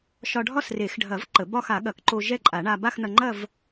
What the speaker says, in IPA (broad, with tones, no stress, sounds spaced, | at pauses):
ʃ ɒ˧ ɖʱ ɒ˥˧ s r e˨˩˦ x ɖʱ ɐ˨˩˦ v ǃ ə˨˩˦ b ɒ˥˧ x a˨˩˦ ɠ ɐ˨˩˦ k ǃ o˧ ʒ ɛ˥˧ ǃʼ a˨˩˦ ɳ a˧ b a˥˧ x n̪ ɐ˧ ŋ͡ǃ ɐ˥˧ v